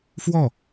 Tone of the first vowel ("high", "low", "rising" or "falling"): falling